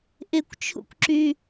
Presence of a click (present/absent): present